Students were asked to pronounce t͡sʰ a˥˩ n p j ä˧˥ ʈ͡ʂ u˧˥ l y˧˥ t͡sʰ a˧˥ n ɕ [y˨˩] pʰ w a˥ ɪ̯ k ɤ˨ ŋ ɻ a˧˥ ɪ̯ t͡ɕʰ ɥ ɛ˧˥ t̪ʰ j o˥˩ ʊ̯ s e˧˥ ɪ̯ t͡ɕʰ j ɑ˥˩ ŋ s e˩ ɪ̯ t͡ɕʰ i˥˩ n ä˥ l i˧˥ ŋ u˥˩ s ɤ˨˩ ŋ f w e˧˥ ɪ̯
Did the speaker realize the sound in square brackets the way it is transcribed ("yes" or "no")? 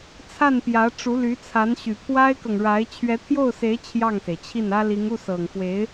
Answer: yes